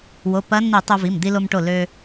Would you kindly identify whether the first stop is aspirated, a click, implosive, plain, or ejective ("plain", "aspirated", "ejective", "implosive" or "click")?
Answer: plain